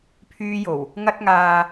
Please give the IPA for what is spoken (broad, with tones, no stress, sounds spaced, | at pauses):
pʰ yː˧ j o˨˩ w | ŋ ɐ˧ t̚ ŋ aː˨